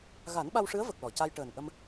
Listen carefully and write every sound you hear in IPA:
ɣ a˨˩˦ n ɓ a˧ w ʂ ɨ˧˥ ə̯ v ə˨˩ k̚ l ɔ˨˩˨ c a˧ j ʈ əː˨˩ n ʔ ə˧ m

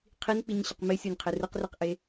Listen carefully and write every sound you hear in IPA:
qʰ i n k͡p i ɲ ɕ ɪ q m ɪ sʲ o nʲ qʰ ɪ r ɯ q r i q ʔ e

